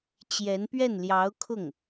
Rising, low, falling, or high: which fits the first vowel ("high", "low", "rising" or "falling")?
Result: rising